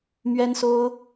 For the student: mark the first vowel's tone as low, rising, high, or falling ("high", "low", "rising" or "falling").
high